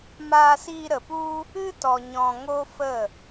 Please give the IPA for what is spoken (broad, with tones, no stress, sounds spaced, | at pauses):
m aː˧ s iː˧ ɾ ə˨ p u˦ | ɨ˦ t ɔ˨ ɲ ɔ̃˨ ŋ o˦ f ə˦˨